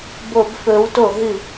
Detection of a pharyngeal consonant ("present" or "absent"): absent